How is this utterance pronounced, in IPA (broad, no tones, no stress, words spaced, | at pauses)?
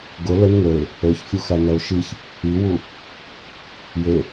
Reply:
ɡʊ lən ŋə˞ɪ̯ | ə˞çfʲuxænɐʊ̯ ʃiç | iwu | je